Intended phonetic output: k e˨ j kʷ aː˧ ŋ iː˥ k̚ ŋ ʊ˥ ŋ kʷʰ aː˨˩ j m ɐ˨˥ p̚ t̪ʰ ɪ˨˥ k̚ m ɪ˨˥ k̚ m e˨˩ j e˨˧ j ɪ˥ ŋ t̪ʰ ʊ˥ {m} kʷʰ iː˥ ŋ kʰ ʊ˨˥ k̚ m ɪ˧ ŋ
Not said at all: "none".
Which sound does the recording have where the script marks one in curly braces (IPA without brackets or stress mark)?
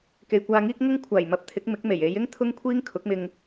ŋ